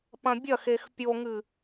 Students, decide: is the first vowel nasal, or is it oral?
nasal